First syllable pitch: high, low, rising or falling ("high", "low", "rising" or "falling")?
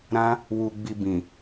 high